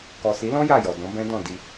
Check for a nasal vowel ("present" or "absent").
present